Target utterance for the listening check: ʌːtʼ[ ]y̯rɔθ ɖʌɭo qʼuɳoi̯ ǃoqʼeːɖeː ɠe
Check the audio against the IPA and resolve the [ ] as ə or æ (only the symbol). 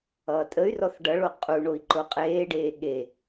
ə